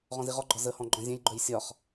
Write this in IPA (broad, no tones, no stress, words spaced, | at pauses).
ʁɔ̃ziʁɔɡ͡ǃɒ zəhɔ̃ ɡ͡ǃɔ̃zʲɛ̃jɡ͡ǃœj sʲɒχ